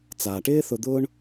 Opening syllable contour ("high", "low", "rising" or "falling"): low